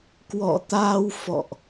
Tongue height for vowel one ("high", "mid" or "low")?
mid